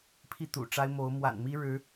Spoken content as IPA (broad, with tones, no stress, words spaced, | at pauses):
pʰi˥˨t̪ṵ˨˩ʈ͡ʂa˦ɪ̯ mo˨˦ʊ̯ mwa̰˨˩nmi˦ ɻɻ̩˨˦